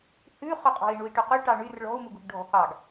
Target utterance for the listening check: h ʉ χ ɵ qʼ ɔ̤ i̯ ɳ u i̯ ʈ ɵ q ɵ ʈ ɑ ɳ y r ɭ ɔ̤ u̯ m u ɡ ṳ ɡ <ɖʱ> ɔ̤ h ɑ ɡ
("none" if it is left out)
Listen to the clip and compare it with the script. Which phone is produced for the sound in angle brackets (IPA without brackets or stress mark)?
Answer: ɖʱ